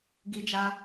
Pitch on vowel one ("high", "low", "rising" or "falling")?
high